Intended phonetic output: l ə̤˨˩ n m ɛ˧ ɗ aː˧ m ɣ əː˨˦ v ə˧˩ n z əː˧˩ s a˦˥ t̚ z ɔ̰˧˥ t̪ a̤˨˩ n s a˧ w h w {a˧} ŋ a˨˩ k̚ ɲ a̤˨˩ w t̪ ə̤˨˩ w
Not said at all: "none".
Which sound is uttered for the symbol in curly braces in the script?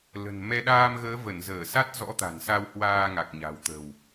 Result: aː˧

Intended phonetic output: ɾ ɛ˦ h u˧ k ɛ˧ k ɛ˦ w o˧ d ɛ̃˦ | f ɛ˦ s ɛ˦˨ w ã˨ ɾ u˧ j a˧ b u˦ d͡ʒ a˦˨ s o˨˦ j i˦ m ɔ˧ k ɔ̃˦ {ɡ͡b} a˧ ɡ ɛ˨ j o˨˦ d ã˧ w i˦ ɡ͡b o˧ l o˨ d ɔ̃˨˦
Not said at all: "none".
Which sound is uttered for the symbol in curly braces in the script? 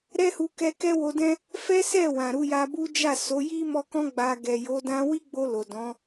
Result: ɡ͡b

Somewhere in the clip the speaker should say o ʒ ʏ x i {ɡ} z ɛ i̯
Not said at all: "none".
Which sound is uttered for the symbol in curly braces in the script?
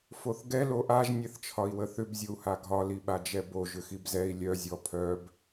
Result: b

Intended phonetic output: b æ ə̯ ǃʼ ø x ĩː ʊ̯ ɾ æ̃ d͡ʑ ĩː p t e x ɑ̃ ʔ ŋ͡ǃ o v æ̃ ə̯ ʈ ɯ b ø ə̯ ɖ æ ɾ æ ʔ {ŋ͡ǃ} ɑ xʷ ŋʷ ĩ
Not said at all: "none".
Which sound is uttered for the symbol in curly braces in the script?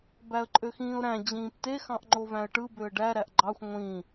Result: ɡ͡ǃ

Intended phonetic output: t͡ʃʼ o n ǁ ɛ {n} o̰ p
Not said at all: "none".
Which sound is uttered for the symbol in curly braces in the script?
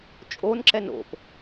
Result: n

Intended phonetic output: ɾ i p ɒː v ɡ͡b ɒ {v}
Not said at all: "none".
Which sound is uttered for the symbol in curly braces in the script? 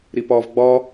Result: none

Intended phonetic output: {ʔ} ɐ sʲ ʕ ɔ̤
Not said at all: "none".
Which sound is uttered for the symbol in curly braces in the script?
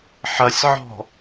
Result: ħ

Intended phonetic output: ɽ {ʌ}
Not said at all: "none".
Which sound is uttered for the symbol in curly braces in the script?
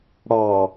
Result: ɑ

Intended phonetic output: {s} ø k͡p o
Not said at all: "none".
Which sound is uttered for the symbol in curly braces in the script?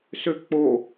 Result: s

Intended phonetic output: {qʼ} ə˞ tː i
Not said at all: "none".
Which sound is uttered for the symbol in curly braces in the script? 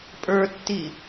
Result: pʼ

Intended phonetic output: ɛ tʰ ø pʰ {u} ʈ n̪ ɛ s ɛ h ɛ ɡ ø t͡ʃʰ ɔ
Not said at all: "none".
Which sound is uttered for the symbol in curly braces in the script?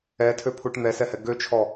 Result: u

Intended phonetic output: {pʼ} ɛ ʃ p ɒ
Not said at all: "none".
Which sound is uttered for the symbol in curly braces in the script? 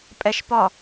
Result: pʼ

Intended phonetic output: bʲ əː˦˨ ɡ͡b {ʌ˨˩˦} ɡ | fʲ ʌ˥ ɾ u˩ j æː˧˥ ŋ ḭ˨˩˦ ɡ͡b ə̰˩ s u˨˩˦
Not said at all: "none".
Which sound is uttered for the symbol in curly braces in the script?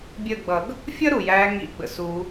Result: ʌ˨˩˦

